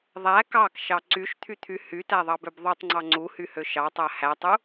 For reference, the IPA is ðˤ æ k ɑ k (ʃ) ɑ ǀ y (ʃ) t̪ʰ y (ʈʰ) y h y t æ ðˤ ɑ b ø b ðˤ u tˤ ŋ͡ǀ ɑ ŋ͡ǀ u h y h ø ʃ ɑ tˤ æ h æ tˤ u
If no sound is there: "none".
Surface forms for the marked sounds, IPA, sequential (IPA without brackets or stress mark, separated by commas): ʃ, ʃ, t̪ʰ